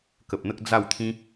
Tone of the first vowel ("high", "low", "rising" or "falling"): low